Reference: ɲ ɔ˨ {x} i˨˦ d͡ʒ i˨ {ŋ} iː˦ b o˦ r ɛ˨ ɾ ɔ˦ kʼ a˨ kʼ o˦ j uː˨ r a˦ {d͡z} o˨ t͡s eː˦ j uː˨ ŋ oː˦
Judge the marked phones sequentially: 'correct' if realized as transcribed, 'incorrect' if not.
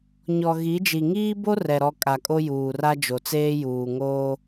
incorrect: ɣ, correct, incorrect: d͡ʒ

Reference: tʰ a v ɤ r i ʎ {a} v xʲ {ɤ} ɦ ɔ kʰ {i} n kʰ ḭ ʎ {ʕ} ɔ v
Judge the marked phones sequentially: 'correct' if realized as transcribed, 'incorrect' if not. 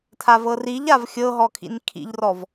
correct, correct, incorrect: ḭ, incorrect: r

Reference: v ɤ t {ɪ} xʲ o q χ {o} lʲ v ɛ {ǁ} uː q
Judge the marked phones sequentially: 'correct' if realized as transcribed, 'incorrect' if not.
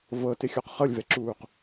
correct, incorrect: ɤ, correct

